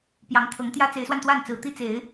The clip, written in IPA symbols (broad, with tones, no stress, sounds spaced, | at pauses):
p j ɑ˧˥ ŋ t̪ʰ ɤ˧˥ ŋ t̪ j ä˥ t͡s e˧˥ ɪ̯ s w a˧ n t̪ w a˥˩ n t͡s ɹ̩˨˩ t̪ i˥˩ t͡s e˨˩˦ ɪ̯